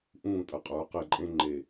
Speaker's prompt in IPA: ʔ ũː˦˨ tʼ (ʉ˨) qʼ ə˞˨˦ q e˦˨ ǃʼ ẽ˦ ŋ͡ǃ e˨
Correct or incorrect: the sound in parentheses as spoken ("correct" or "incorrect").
incorrect